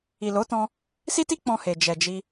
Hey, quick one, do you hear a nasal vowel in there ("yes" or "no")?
yes